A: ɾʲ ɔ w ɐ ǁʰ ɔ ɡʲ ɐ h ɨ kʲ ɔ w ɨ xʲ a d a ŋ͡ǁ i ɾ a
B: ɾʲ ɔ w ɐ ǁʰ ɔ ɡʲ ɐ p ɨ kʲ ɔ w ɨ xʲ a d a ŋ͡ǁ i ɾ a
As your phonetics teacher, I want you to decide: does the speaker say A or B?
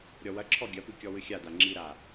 B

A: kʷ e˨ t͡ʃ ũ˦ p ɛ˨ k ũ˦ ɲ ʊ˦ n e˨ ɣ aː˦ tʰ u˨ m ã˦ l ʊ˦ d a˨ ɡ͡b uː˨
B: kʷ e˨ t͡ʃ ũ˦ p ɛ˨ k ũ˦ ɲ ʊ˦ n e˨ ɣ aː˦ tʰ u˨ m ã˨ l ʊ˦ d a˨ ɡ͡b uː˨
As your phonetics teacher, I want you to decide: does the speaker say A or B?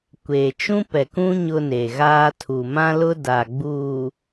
A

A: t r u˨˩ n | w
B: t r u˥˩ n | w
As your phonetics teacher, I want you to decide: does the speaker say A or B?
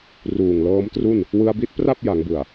B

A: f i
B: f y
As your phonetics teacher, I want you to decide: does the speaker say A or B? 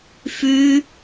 B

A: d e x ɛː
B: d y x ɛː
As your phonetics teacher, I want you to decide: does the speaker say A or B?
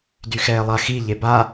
B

